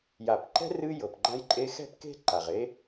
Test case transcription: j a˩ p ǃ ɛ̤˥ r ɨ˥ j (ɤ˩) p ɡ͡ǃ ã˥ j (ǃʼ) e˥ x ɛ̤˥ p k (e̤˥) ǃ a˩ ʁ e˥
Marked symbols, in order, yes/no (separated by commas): yes, yes, yes